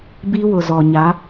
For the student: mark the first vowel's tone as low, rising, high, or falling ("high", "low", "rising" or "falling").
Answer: high